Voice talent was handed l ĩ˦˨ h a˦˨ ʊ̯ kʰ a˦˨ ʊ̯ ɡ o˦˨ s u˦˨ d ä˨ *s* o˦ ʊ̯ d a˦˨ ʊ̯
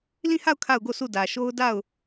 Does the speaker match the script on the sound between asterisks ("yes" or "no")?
no